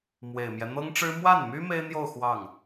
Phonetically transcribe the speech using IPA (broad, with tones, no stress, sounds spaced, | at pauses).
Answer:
m w e˨˩ ɪ̯ m j ɛ˦ n̪ ɤ˥ ŋ ʈ͡ʂ ɻ̩˥ m w a˥˩ n m y˥ m e˥ ɪ̯ n̪ j o˥˧ ʊ̯ x w ɑ˥˩ ŋ